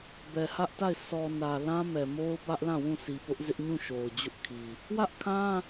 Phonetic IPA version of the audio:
bɛ˨hä˦ʔta˦˨ɪ̯ sɔ˨nä˨ lã˦mɛ˨mo˦ʊ̯ bä˦ʔlã˦˨wũ˦˨ si˨pʊ˦ʔzɪ˦ʔ ɲũ˦˨ ʃo˨ʊ̯ d͡ʑʊ˦ʔkʰi˨ | wä˦ʔkʰã˦

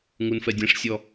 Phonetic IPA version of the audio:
ŋunfɛdʲɛ̃ʂsʲɔ

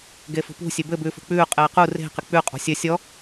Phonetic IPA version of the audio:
ɡefṳpṳ sʲebɘ bʉːfṳk͡pʉː qʼɘːqu re̤ qɪk͡pʉ qʼɔ̤sʲɘ sʲɔ

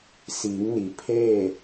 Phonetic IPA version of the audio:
siː˩˧ŋni˩ pʰeː˥˨

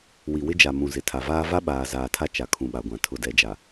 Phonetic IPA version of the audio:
wi˨wɪ˦d͡ʒa˨ mũ˨zɪ˨ tʰa˨vaː˦ va˦ɓaː˨ zaː˨tʰa˦ t͡ʃa˨kʰũ˨ɓa˨ɡʷã˨ tʰʊ˨dɛ˨d͡ʒa˨

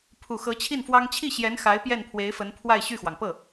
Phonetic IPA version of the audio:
pʰu˨˩xɤ˧˥t͡ɕʰi˥˩nfwɑ˥ŋ t͡ɕʰi˥˩ ɕjɛ˧˥n xa˧˥ɪ̯ pjɛ˥˩npʰwe˧˥ɪ̯fə˧˥n pʰwa˥˧ɪ̯ɕy˥˩xwɑ˩ŋ pɤ˥˩

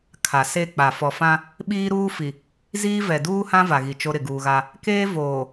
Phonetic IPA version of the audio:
kʰa˨ se˦˨k͡pa˨ fɔ˨fã˦ | ɓiː˦ɾuː˦fi˨ | ziː˦vɛ˨ duː˦hã˦ va˨ɣi˨ t͡ʃo˦ ɾɪ˨ɡuː˨ɣa˦ | keː˦voː˨

